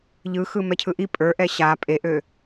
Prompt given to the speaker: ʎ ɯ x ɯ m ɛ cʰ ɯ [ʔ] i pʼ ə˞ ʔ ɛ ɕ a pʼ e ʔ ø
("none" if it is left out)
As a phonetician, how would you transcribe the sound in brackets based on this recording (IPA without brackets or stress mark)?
ʔ